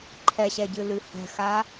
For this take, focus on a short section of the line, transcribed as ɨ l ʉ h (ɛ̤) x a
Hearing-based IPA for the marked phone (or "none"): ɛ̤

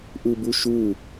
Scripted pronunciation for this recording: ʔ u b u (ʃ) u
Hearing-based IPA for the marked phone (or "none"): ʃ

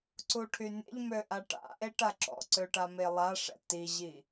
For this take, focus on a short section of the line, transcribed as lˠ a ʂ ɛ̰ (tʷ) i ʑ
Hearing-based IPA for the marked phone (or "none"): t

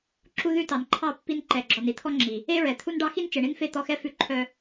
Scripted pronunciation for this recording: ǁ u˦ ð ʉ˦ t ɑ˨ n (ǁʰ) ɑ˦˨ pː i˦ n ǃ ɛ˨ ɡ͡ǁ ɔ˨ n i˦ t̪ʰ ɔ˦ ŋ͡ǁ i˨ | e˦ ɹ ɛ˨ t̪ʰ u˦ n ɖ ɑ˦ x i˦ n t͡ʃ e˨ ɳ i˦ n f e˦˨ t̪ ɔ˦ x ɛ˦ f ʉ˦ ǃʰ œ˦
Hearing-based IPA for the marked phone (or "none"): ǃʰ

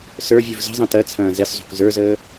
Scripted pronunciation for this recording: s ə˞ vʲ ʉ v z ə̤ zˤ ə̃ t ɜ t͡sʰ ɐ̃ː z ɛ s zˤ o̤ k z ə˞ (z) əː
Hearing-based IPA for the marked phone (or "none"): z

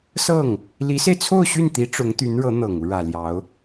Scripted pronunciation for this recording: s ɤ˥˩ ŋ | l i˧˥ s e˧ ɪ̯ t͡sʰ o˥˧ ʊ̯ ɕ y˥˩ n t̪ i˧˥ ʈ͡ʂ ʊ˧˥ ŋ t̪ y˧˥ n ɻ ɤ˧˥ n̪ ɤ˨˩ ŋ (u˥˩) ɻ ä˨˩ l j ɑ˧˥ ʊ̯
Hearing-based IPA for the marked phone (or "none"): u˦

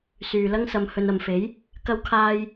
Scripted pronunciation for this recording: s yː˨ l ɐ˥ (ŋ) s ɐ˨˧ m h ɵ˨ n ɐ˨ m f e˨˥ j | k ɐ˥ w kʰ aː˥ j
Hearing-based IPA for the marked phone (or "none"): ŋ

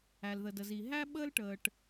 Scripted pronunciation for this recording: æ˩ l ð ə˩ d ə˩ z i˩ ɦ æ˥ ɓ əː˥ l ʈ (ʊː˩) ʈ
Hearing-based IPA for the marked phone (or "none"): əː˩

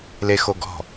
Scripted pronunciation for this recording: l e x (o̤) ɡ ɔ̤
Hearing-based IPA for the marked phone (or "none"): o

